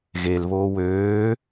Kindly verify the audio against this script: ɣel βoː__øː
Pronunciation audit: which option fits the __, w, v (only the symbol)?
w